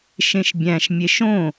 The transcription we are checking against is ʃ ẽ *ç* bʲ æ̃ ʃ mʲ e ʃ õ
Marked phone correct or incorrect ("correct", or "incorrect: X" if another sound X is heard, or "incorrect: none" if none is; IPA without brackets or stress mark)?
incorrect: ʃ